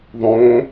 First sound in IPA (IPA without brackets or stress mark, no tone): ðˤ